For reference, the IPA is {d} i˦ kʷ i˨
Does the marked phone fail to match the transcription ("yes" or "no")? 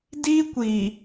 no